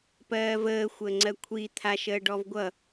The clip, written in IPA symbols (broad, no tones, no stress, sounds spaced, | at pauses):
p ɜː v əː xʷ əː ŋ͡ǀ ɜ kʷʰ i t̪ʰ a ʃ əː ɖ ɔ v ɡʷ ʌ